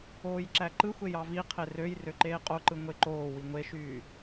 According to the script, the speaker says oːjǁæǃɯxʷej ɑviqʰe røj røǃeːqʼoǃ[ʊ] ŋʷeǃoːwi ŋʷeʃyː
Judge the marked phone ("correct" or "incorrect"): incorrect